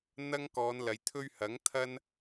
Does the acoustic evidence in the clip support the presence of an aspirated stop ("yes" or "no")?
yes